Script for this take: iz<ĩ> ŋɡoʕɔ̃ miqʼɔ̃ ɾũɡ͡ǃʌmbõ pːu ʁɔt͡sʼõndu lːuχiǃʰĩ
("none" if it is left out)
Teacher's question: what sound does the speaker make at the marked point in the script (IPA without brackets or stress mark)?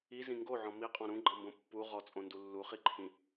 ĩ